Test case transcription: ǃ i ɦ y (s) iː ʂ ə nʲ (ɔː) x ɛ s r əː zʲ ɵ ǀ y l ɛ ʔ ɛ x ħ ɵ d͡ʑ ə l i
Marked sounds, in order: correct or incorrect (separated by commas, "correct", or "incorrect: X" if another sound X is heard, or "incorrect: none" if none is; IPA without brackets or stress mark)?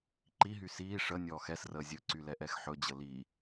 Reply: correct, correct